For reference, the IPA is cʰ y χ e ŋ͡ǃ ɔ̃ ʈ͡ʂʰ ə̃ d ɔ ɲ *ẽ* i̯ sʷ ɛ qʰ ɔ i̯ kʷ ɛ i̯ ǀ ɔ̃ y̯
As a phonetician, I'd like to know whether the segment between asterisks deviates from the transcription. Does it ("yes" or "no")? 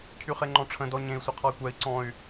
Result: no